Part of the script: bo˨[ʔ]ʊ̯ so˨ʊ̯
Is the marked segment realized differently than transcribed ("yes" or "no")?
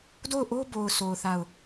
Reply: yes